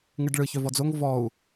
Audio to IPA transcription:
ŋ ɯ ɖ ɭ ɯ ç œ v ɔ d͡z o ŋ v ɔ u̯

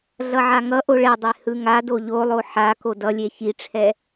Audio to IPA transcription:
ɮ ʌ ʕ a ŋ ʌ ʔ o ɭ ɛ dˤ e h ɯ ŋ a d o ʎ o lˠ o ħ a k o d ʌ lʲ e ç i ʈ͡ʂʰ ɛ

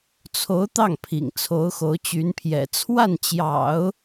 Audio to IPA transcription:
t͡sʰ o˧˥ ʊ̯ t̪ ɑ˥˩ ŋ pʰ ḭ˨˩ ŋ t͡sʰ o˧˥ ʊ̯ x o˧˥ ʊ̯ t͡ɕ y˧˥ n pʰ j ɛ̰˨˩ t͡sʰ w a˥˩ n t͡ɕ j ɑ̰˨˩˦ ʊ̯

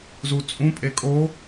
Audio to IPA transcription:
z u t͡sʼ ũ pʼ e kʼ o

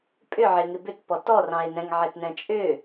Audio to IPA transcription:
pʼ ʏ ʕ ɪ ŋ ɪ b ʏ t p ɔ t ɔ r ɑ̃ e̯ n ɛ̃ ŋ ʕ ɪ t n ɛ̃ t͡ʃʼ ʏ

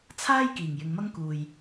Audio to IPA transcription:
t͡sʰ aː˥ j k iː˨˩ ŋ j ɪ˨˧ ŋ m ɐ˥ ŋ k uː˨ j

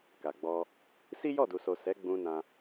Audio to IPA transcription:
k a˨ ɡ͡b ɔ˧ | s i˦ j ɔ˦˨ d u˨ s o˨ s ɛ˨˦ ɡ͡b ũ˧ n ã˧

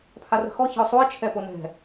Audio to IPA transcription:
pʰ a r ə̤ x ɔ ç ə̤ ʊ̯ sˤ u ɪ̯ t͡ʃʰ ɛ p o n ɛ̤

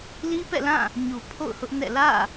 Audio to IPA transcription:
l i˦ p ɛ̰˦˨ l ã˦˨ | ɲ u˨ pʰ o̰˦˨ ʊ̯ h ʊ˦ ʔ n ɛ̰˦˨ l ä̰˦˨

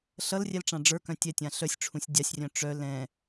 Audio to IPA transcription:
ɬ ʌ l rʲ ɛ l ʈ͡ʂ ã ɖ͡ʐ ə˞ k œ̃ tʲ ɛ tʲ ã ɬ œ sʲ ʈ͡ʂʰ ũ sʲ dʲ a sʲ rʲ œ̃ ʈ͡ʂ œ l ɛ̃

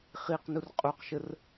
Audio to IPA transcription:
χ i q n u r qʼ u q ʃ ə r

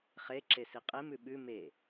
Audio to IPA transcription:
χ e ǁ e s i qʼ e m ʉ ɓ ʉ m e

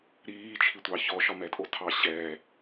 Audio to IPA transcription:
ɾ iː t͡ʃʰ i tʷ ɑ ç ɔ ʃ ɒ m ɛ tʼ o tʰ ɑ ɕ ɛː

